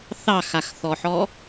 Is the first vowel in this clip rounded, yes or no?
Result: no